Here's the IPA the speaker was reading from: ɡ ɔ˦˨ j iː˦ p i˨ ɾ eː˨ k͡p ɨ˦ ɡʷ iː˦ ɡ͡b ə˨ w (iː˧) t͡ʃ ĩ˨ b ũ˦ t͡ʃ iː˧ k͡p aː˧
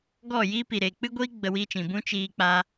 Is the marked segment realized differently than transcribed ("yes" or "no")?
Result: no